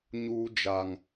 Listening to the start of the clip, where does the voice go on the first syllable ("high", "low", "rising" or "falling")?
high